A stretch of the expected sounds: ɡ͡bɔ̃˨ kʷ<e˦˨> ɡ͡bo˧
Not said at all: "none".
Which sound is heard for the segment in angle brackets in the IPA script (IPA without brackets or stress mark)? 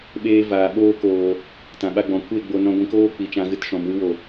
e˦˨